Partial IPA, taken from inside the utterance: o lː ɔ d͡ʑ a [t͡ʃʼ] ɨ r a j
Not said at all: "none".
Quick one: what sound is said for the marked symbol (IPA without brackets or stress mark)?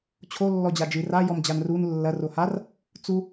d͡ʒ